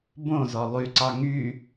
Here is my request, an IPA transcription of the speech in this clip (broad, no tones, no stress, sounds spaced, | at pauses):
b õ z ɔ lˠ y ǀ ɑ ŋ y